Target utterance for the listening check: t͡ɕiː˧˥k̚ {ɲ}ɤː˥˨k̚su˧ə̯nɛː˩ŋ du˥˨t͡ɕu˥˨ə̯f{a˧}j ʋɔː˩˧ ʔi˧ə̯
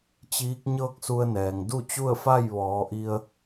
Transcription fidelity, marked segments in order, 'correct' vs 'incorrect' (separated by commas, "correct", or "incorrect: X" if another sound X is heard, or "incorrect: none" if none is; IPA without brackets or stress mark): correct, incorrect: a˥˨